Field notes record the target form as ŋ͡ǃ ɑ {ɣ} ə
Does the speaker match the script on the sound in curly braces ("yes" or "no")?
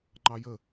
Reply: no